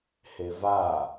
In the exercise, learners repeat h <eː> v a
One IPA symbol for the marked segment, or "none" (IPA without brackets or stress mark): e